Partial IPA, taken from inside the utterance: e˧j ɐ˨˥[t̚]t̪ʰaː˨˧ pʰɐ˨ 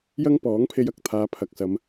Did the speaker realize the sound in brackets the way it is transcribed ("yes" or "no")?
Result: no